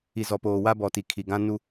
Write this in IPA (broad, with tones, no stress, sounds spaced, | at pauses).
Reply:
i˨ z ɔ˨ p oː˨ w a˦ b ɔ˨ t i˨ kʰ i˨ ɡ ã˦ n u˦